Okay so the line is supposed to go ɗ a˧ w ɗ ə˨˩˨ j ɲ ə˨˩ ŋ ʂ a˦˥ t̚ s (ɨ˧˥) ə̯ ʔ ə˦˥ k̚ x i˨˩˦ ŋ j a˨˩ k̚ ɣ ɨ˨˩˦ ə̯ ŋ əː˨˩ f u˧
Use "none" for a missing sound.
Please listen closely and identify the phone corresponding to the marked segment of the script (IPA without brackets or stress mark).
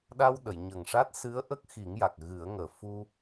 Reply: ɨ˧˥